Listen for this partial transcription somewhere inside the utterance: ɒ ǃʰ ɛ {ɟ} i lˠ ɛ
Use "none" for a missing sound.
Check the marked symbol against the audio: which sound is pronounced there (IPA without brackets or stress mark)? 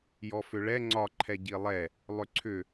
ɟ